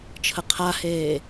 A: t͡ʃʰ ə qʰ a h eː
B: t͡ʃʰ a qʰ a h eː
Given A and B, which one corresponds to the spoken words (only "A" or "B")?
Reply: A